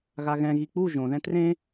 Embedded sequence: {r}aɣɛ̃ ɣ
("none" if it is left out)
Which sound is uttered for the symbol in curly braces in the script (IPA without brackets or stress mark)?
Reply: ɣ